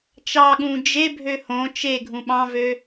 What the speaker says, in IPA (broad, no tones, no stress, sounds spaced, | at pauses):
t͡ʃ ɑ ɠ ũ d͡ʒ e bʱ ø h õ t͡ʃ e ɡʱ ũ ɓ ɑ̃ v ø